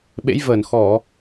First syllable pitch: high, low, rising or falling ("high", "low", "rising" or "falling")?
rising